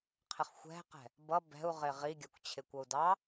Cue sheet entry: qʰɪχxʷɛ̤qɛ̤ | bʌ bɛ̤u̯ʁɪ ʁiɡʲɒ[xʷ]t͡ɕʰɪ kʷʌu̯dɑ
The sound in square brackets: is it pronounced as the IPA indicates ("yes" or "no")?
no